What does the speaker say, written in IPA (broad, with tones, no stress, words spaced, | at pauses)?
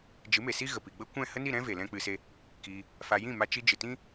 d͡ʒɨ˨˦me˨si˦ɣə˨ pi˨ɡ͡bə˦ kʷɛ̃˦˨ hə˦ni˦˨ɾɛ̃˦ ve˨lɛ̃˦k͡pɨ˧se˦ | ki˧ | fa˧ jĩ˦˨ma˧ t͡ʃi˧d͡ʒɨ˨tĩ˦